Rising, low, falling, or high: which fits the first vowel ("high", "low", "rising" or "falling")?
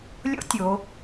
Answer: high